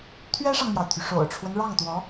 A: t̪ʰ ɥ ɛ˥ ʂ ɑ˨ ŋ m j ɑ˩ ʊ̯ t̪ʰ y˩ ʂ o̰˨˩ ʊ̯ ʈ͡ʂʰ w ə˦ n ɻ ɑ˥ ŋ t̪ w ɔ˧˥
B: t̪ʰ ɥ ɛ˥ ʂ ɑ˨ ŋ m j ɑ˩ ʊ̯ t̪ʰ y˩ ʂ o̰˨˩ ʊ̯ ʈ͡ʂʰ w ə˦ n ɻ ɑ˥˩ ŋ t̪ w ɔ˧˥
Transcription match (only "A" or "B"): B